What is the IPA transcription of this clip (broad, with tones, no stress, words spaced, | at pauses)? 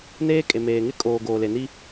neː˦kʼe˨meː˨ŋɪ˦ kʼoː˨ ɡoː˨le˨ni˦